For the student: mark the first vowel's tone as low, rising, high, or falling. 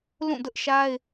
falling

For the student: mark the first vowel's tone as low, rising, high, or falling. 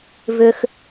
high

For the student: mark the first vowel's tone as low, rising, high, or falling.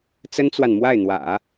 high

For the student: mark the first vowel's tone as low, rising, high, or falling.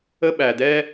high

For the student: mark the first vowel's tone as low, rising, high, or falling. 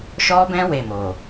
high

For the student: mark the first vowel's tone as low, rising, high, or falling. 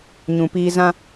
low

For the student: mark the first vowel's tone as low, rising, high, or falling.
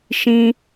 high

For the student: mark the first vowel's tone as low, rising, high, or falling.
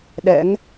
rising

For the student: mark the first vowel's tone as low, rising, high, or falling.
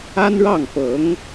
high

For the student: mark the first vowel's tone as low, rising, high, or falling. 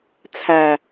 low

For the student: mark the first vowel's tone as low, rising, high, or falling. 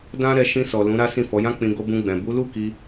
high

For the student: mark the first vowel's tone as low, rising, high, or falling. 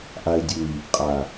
low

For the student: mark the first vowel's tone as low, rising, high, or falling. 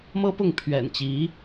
high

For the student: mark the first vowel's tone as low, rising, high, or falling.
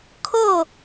falling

